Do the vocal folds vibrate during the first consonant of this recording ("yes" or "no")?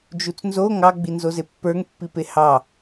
yes